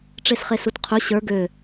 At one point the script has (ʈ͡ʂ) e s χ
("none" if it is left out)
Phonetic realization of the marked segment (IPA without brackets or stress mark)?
ʈ͡ʂ